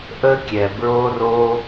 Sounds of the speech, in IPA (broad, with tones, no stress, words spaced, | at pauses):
ʔə˧kʲɛ˨ bɹo˧ro˧